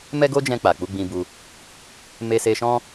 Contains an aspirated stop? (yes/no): no